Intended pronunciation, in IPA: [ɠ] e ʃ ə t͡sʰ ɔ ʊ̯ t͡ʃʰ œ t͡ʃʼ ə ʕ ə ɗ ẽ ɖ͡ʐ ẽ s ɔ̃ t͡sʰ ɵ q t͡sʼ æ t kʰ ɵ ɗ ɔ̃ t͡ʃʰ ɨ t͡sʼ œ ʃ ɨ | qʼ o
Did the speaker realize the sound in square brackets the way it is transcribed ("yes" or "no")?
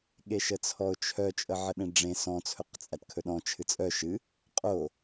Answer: yes